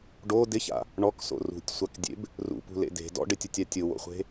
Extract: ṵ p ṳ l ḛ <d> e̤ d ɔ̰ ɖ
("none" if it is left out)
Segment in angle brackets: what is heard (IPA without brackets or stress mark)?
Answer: d